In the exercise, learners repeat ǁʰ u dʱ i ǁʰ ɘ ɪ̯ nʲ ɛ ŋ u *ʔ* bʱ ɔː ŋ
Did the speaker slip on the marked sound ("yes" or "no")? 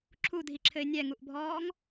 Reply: no